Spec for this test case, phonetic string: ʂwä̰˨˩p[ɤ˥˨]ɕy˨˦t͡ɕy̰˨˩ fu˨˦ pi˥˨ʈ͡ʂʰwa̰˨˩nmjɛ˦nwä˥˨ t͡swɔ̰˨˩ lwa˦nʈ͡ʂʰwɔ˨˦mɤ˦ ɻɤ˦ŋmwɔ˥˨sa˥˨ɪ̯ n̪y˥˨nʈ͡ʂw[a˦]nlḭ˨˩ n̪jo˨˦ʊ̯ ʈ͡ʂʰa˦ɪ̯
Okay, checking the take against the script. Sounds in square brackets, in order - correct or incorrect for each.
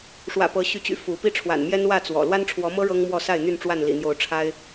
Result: incorrect, incorrect

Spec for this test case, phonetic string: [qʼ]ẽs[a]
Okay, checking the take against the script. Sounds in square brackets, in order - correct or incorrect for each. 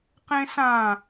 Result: incorrect, incorrect

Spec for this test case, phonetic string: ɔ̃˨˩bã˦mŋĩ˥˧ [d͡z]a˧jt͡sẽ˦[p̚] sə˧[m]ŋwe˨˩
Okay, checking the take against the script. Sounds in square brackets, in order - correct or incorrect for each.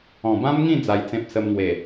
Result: correct, correct, correct

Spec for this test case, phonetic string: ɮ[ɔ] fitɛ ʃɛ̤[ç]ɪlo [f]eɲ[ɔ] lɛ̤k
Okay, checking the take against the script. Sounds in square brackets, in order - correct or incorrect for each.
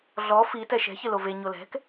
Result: correct, correct, incorrect, incorrect

